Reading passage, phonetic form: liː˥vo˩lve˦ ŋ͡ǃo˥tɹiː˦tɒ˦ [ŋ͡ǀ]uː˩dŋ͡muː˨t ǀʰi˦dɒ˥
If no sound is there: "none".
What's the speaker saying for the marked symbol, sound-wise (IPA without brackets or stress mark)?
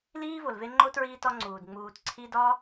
ŋ͡ǀ